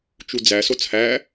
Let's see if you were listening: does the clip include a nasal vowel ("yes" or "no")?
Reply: no